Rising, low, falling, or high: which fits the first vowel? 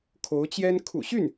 rising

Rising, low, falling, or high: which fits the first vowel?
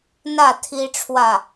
falling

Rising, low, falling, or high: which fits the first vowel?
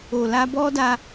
low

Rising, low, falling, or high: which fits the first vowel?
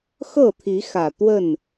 falling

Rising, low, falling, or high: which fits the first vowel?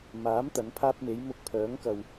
rising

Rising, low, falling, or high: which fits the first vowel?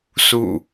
falling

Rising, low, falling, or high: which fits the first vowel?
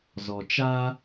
low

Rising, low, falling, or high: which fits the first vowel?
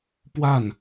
falling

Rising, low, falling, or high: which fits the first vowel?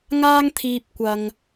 high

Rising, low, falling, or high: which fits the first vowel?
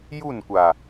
falling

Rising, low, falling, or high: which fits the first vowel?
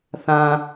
low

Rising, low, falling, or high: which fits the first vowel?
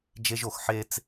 high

